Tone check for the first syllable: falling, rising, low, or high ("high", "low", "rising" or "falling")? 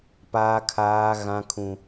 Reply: high